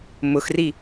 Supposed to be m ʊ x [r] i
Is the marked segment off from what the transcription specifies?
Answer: no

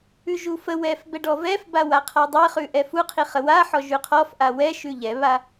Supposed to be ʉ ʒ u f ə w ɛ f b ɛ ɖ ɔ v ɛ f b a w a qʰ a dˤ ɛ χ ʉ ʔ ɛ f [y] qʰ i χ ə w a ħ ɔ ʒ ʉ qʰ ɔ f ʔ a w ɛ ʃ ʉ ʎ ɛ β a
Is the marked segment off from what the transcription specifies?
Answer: yes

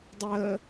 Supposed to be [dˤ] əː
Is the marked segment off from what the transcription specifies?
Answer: no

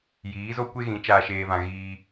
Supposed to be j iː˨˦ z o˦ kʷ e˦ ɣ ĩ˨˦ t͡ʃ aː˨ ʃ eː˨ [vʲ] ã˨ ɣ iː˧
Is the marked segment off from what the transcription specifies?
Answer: yes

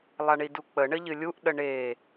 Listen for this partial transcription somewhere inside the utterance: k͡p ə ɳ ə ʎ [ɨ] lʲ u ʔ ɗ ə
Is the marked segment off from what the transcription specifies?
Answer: no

